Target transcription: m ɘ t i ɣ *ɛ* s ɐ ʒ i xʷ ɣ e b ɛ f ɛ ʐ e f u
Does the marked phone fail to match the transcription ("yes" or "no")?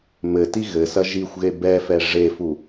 yes